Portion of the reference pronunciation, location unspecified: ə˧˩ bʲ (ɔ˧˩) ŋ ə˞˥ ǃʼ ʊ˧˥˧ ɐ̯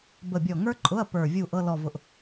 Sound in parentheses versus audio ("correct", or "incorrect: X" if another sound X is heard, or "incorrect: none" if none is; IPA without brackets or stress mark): correct